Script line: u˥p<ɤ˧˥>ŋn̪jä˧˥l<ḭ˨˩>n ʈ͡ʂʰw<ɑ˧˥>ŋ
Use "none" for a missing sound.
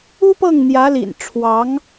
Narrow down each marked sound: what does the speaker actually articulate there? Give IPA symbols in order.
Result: ɤ˥˩, ḭ˨˩, ɑ˧˥

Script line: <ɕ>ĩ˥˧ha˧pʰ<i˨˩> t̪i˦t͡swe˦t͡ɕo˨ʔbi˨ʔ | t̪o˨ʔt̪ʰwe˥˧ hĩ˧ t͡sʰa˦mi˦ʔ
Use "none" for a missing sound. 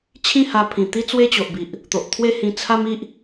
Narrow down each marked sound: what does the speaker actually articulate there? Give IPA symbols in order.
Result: t͡ɕʰ, ĩ˨˩

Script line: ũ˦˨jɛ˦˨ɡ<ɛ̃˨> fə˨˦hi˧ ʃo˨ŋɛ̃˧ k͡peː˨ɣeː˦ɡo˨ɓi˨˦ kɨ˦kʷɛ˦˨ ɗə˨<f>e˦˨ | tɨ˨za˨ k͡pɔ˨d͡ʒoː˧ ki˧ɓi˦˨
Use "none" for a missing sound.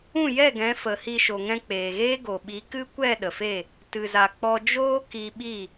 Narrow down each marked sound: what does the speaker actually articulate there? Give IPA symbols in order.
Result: ɛ̃˨˦, f

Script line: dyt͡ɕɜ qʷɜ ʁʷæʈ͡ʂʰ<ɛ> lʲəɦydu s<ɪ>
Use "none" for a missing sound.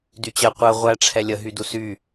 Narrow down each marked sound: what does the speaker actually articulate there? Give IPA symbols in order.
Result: ɛ, y

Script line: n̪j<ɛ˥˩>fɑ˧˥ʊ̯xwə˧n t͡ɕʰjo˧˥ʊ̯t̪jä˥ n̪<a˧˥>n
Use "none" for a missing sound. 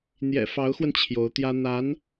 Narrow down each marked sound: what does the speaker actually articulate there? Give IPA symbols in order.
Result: ɛ̰˨˩, a˧˥

